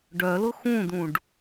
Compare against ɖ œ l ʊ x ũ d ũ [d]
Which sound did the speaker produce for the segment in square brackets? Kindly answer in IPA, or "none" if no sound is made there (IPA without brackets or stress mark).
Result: ɖ